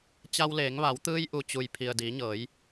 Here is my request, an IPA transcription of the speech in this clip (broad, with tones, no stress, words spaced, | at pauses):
t͡ɕa˧wleː˩˧ŋʋa˩˧w t̪ɯː˧jʔu˩ t͡ɕu˩j pʰi˩ə̯ diː˩˧ɲɤː˩˧j